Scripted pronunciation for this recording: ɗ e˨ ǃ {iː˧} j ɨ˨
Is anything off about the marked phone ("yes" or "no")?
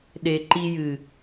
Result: yes